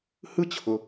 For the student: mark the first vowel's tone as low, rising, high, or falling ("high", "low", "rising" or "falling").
high